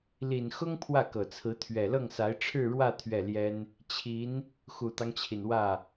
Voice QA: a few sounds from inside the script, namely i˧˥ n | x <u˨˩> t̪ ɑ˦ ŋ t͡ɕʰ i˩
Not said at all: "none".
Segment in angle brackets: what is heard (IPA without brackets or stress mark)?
u˨˩